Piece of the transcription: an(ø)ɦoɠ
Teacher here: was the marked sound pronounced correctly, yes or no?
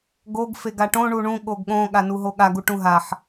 no